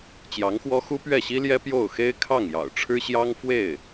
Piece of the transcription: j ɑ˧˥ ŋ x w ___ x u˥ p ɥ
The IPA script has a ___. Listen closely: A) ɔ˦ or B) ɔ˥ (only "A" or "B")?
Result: B